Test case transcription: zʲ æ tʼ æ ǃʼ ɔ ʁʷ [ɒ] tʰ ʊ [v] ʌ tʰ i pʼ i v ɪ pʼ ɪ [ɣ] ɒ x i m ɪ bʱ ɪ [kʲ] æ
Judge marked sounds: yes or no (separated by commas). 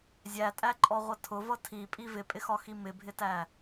no, yes, no, no